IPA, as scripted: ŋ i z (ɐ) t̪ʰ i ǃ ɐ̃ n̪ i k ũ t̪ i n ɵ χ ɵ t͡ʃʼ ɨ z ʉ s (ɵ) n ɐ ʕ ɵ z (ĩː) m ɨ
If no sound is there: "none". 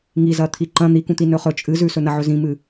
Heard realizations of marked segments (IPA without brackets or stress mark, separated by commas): ɐ, ɵ, ĩ